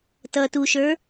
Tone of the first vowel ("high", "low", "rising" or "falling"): low